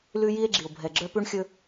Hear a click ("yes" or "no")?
yes